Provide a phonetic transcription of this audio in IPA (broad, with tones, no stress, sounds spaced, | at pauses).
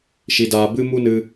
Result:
ʃ i˧ d aː˧ b ɨ˦ m u˦ n ɨ˧